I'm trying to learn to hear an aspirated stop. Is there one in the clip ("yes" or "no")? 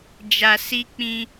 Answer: no